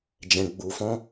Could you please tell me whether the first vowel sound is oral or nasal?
nasal